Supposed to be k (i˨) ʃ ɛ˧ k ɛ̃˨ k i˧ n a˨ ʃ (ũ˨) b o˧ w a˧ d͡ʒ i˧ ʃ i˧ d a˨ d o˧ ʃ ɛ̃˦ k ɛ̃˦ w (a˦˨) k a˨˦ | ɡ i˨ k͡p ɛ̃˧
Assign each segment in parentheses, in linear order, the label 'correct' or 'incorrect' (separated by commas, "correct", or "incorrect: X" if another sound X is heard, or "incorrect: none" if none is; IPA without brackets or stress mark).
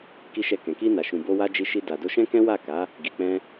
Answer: incorrect: i˧, correct, correct